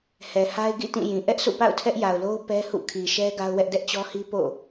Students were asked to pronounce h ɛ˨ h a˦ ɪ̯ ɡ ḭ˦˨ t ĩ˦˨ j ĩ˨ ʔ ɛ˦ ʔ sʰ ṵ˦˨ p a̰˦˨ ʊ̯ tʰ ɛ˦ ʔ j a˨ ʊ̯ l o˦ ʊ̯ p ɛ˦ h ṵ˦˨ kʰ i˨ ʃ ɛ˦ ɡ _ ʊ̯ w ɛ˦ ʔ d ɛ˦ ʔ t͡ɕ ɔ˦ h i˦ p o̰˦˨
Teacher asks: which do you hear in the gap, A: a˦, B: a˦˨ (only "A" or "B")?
A